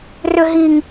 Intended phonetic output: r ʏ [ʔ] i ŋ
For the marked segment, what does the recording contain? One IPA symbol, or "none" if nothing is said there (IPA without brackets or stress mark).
ɦ